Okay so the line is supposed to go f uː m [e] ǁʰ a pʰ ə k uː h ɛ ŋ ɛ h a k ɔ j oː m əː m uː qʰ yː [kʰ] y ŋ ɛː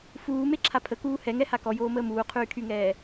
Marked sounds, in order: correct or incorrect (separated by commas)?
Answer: correct, correct